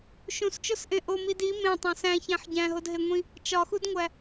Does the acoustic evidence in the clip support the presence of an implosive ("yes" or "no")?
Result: no